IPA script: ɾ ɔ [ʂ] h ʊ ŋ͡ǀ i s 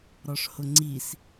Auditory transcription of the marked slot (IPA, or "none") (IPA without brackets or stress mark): ʂ